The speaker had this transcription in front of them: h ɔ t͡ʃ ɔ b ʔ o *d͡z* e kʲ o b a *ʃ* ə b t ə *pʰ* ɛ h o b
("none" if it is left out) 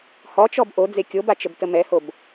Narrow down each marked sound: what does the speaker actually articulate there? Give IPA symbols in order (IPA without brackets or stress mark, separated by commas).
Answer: d͡z, t͡ʃ, m